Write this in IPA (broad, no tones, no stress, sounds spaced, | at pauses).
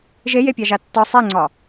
ʒ e j e pʲ ɑ ʒ a tː ɒ sˤ e ŋ͡ǀ ɒ